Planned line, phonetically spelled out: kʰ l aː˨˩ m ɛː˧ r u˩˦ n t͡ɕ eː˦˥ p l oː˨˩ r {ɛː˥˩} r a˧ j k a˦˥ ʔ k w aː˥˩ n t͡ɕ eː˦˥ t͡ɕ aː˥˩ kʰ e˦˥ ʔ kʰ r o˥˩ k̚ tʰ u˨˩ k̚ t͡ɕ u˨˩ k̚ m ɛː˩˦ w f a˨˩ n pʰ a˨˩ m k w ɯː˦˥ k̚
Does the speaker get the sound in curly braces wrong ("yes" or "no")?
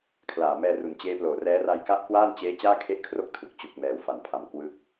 yes